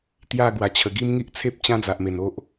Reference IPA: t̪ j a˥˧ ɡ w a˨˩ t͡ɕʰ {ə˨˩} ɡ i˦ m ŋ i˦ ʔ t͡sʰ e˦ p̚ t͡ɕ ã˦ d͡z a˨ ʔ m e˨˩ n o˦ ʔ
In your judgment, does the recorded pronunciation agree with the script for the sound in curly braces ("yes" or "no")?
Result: yes